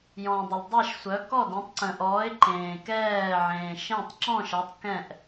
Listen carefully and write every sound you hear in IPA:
j ɔ̃˨ dˤ ə˨ l dˤ ɛ˦˨ ʃ sʷ œ˨˦ k ɔ˦˨ d ẽ˨˦ tˤ ǀ ə̃˨ ʔ ɔː˨˦ ɪ̯ ǃ ẽː˨ k ɛː˦˨ ʕ ẽː˨ ʃ ẽ˦˨ tˤ ǁ ɔ̃˦˨ ʃ ʌ˨˦ tˤ k ɛ̃˦˨ ʔ

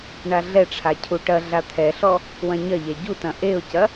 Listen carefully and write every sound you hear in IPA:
ɳ a ɮ ɛ ʈ͡ʂʰ a cʰ u ʈ ɐ ɮ a t̪ʰ ɛ ɬ ɔ | w ɐ̃ ɲ ɐ ʎ ɛ ɟ u t ɐ̃ ʔ e ʊ̯ c ɐ

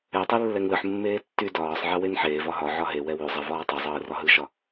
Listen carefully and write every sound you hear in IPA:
ɛ tˤ e lː ɛ ŋ l ɯ ħ mː eː tː y d ɒː sˤ ʕ ɛ w e n ħ eː v ɒ ɦ ɒ ʕ ɒ ɦ e w ɛ w y zˤ ɛ v ɒː tˤ e zˤ ɯː r ɒ ɦ ɯ ʃ ɒ

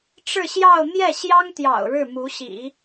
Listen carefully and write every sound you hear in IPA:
ʈ͡ʂ ɻ̩˥˧ ɕ j ɑ˥˧ ʊ̯ n̪ j ɛ˥˩ ɕ j ɑ˥ ŋ t̪ j ɑ̰˨˩ ʊ̯ ɻ ɻ̩˥˩ m u˧˥ ɕ ḭ˨˩˦

